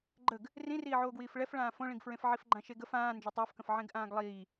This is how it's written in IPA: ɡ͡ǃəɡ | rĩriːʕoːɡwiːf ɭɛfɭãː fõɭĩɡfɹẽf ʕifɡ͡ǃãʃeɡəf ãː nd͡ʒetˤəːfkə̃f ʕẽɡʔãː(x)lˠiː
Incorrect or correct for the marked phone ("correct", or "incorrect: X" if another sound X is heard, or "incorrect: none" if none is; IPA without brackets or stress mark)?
incorrect: ɡ